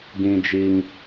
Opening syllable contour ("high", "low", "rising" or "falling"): high